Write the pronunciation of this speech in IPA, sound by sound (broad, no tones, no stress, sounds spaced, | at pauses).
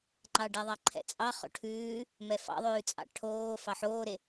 ŋ͡ǃ ɑ ɖ ɛ ðˤ ɑ ǃʰ ɛ̰ t͡sʼ ɑ χ o̰ ʈʰ ʉː | m ɛ f ɑ̰ ðˤ ʉː t͡sʼ ɑ̰ ʈʰ oː f ɑ ħ oː ɾ e